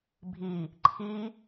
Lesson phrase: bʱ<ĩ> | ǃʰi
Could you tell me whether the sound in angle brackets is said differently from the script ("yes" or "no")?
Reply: yes